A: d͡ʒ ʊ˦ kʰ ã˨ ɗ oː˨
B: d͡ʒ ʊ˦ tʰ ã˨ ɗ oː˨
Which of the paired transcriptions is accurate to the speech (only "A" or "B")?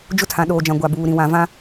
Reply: B